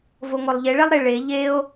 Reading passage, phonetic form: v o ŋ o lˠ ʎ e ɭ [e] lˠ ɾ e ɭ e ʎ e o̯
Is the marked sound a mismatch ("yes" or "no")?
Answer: yes